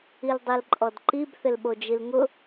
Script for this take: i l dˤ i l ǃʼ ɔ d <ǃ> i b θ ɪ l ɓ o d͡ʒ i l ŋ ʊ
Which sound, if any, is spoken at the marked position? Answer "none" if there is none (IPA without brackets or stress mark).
ǃ